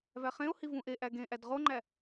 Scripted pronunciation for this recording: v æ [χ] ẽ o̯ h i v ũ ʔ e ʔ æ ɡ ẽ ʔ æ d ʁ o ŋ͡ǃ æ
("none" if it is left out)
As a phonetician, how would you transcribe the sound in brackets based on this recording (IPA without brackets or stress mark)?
χ